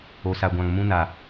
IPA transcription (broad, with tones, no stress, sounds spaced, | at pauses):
o˨ s a˨ ɡʷ ã˨ ŋ m ũ˦ n a˨